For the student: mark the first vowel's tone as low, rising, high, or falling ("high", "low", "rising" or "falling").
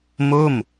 falling